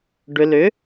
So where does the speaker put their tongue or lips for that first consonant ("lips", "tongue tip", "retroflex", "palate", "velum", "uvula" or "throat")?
retroflex